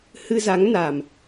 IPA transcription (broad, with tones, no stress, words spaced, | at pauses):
hɨ˧za˨˦ŋna˨˩m